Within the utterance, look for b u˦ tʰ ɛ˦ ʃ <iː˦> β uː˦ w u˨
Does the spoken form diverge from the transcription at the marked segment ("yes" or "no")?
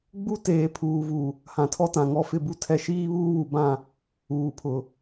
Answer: no